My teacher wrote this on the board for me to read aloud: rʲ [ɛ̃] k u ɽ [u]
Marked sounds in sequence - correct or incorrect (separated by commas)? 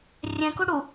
correct, correct